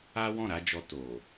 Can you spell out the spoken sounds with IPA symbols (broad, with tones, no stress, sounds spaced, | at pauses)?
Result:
a˦ w ɔ̃˦˨ ɾ a˨˦ d͡ʒ ɔ˧ t o˨